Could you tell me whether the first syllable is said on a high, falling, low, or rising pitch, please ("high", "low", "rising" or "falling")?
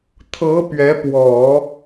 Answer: rising